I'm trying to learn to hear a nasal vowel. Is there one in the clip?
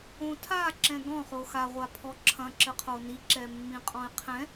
yes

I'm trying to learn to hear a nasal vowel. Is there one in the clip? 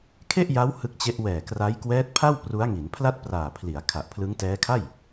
no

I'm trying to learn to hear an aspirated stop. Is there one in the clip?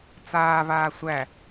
no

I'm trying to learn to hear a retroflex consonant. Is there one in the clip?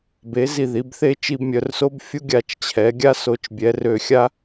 no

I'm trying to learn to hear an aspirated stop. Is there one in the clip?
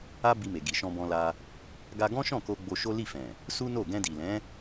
no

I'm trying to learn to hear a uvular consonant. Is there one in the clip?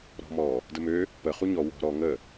yes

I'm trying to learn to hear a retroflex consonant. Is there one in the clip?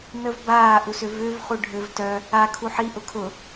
yes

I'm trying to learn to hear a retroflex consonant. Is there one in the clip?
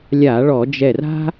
yes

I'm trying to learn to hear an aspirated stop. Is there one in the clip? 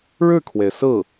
yes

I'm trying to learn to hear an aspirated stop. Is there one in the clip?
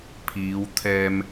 yes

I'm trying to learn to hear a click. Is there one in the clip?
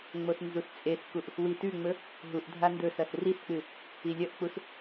no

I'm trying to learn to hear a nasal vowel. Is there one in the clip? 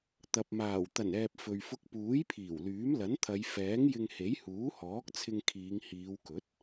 no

